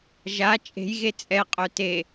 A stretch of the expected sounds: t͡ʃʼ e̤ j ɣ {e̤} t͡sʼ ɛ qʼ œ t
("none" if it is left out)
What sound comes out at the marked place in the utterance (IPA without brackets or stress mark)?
e